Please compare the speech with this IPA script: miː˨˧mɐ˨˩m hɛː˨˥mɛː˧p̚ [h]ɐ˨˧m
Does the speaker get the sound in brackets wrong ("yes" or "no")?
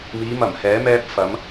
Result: yes